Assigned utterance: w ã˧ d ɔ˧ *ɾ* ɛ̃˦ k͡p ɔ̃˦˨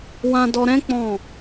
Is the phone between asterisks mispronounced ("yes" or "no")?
no